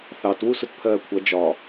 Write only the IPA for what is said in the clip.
θɑt wusʊtpʰɜːkʷʰʌ d͡ʒɒ

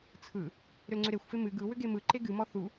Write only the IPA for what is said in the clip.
t͡sʰɯ | ɾʏlŋ͡ǀʏɾexʷfe mɨ ɡɯ wʏɡemɯ ǃeɡɨmɔ θu

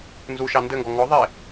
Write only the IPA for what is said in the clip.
nzuʃɑ ndɘŋɡɔ ŋɔ ðˤe

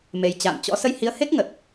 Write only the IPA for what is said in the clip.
me˨˩jt͡ɕa̰ː˧˨mt͡ɕɔ̰˧˥ sə˧jhi˨˦ə̯he˦˥k̚ ŋə˨˩t̚

